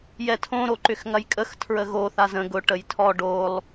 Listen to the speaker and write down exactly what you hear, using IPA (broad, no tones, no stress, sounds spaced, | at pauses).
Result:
j ɛ tʰ õ ɾ o ǃ ʏ x ŋ ɐ j kʼ ə x tʰ ɹ ə ɣ o θ a z ə̃ ɡ ʊ ʈ ə j tʰ ɔ ɖ o lˠ